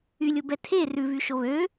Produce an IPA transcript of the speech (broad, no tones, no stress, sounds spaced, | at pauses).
y lʲ o b ɛ tʰ e r ʉ v y ʃ o β ø